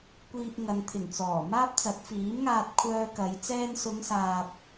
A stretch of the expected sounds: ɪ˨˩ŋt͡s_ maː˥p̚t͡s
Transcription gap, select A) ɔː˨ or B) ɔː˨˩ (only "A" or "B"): B